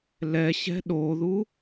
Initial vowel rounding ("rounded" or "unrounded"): unrounded